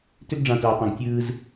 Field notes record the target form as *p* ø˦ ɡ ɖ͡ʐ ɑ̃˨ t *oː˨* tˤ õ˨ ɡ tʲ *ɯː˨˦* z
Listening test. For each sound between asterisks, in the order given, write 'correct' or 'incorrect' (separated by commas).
incorrect, correct, incorrect